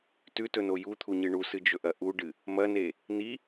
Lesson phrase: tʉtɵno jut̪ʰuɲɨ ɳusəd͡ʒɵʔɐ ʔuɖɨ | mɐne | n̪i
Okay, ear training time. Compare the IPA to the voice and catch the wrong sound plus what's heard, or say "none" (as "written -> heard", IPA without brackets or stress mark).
ə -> ɨ